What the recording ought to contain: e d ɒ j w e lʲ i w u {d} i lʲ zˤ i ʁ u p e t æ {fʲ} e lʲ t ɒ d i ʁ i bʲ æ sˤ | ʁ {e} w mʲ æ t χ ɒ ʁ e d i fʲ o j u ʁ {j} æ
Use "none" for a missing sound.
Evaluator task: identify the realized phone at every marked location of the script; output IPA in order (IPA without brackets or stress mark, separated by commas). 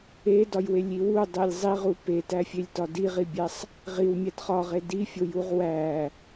dˤ, fʲ, i, w